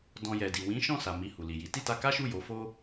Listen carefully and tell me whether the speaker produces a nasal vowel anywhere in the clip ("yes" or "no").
yes